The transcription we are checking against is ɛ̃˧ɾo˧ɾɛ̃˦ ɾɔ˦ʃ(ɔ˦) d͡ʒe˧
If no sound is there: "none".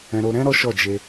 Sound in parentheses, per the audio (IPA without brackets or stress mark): ɔ˦˨